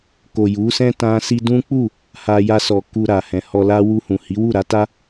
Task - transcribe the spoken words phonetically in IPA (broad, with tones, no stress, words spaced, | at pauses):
ko˨ju˨˦sɛ̃˦ tã˧si˧ dũ˦k͡pu˦˨ | ha˧ja˧sɔ˨ ku˧ ɾa˨hɛ̃˨hɔ˧la˦ wu˧hũ˨hi˨˦wu˦˨ ɾa˨˦ta˦